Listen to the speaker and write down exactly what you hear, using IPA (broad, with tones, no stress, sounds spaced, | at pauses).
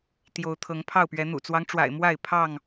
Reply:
t̪ j o˨˦ ʊ̯ t̪ʰ ɤ˨˦ ŋ pʰ ɑ˥˨ ʊ̯ p ɥ ɛ˨˦ n̪ ṵ˨˩ t͡s w ɑ˦ ŋ ʈ͡ʂ w a̰˨˩ ɪ̯ m w a˥˨ ɪ̯ pʰ ɑ˥˨ ŋ